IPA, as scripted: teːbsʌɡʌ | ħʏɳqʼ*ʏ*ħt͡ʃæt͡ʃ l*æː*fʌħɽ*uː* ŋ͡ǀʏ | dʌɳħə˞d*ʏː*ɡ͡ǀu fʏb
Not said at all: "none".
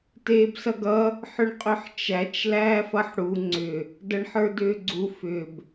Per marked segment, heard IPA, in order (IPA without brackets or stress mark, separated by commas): ʏ, æː, u, ʏː